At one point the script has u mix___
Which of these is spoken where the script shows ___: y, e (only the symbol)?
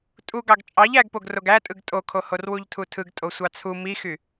y